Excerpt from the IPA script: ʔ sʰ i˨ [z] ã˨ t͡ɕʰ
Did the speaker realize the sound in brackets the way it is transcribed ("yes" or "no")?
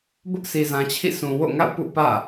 yes